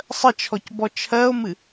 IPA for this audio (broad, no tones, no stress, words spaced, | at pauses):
sˤət͡ʃʰɔc bɔt͡ʃʰɜo̯mɨ